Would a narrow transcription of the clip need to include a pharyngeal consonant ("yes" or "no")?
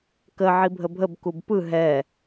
yes